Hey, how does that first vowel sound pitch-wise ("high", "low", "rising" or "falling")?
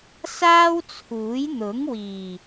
high